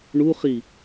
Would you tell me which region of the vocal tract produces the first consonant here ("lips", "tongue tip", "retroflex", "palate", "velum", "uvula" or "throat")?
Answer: retroflex